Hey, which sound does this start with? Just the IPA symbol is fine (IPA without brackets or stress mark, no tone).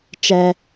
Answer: t͡ʃ